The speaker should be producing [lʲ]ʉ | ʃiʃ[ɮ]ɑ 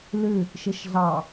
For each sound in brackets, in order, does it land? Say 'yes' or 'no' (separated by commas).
no, yes